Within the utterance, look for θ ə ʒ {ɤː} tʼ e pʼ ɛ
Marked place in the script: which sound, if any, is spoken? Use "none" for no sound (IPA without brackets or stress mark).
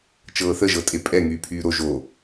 ɤ